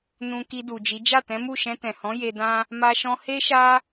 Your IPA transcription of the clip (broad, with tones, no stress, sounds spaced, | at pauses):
n ũ˨ k i˧ d u˨ d͡ʒ i˨˦ d͡ʒ a˦˨ t ɛ̃˨˦ m u˦˨ ʃ ɛ̃˧ t ɛ̃˨ h ɔ̃˨˦ j e˧ d ã˦ | m a˧ ʃ ɔ̃˧ h e˧ ʃ a˧